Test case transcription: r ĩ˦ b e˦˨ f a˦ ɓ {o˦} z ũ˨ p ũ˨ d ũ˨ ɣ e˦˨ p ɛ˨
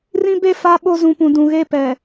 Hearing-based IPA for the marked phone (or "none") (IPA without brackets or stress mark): o˦